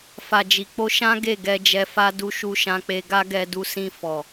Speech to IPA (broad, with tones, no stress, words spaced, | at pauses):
fa˨d͡ʒi˨k͡po˧ ʃã˦ ɡe˦˨ɡɛ˧ d͡ʒɛ˧fa˦du˦ ʃu˧ʃã˧k͡pe˧ ɡa˦ɡɛ˧du˧sĩ˧ fɔ˨